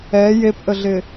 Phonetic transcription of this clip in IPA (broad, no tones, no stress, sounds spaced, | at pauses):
ɛ j e p ʔ ə ɮ ɪ